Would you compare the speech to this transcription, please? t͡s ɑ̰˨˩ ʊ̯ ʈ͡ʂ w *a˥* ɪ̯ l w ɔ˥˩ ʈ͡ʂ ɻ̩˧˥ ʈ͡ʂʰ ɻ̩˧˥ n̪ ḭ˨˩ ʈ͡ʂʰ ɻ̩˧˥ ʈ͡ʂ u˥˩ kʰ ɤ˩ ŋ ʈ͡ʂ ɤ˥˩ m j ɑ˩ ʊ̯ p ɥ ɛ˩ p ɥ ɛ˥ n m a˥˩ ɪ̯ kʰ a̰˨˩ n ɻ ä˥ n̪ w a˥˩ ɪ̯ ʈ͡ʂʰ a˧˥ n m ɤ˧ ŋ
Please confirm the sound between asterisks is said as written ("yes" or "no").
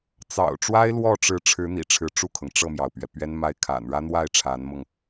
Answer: yes